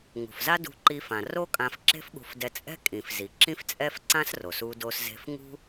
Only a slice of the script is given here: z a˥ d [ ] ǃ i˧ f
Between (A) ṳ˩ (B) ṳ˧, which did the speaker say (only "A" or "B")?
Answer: B